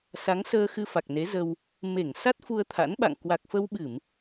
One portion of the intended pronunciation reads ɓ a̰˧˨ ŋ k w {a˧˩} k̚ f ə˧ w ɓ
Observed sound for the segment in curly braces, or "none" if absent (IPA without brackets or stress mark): a˨˩